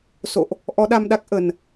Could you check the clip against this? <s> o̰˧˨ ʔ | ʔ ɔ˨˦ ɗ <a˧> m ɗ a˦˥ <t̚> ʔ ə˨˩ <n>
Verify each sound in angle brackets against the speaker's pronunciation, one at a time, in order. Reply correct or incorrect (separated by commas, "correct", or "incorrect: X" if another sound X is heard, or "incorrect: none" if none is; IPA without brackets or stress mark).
correct, correct, incorrect: k̚, correct